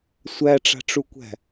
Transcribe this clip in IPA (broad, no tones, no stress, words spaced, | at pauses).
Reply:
sʷæʈ͡ʂa̤ʈ͡ʂukʷæ̤